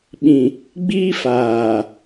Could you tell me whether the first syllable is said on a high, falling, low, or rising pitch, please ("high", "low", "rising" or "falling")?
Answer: low